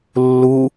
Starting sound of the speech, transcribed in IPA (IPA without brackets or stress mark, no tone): lː